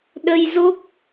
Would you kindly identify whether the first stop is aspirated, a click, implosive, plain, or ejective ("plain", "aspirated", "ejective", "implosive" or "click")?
implosive